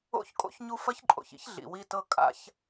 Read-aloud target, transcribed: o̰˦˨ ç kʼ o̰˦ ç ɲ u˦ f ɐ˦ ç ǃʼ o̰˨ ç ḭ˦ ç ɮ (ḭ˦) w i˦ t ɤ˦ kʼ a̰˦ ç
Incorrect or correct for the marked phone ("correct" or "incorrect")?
incorrect